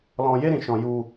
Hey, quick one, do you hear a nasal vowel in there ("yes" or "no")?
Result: yes